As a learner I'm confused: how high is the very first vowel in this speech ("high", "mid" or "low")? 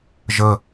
mid